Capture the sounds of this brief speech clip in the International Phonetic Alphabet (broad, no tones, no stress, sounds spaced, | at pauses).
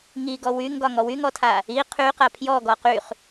ŋ i ɡ ɔ w y ŋ ɡ ɒ ŋ ɔ w y ŋ ɔ tʰ a | i qʰ y q a pʰ j ɔ ɡ ɔ q y χ